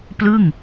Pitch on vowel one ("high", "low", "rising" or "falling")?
falling